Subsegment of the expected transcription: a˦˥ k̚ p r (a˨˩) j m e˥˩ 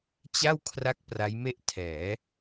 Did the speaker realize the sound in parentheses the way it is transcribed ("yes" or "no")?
no